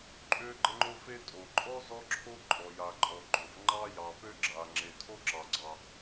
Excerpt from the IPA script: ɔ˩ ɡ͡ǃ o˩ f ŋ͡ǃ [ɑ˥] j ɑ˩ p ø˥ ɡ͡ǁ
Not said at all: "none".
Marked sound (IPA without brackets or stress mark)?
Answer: ɑ˥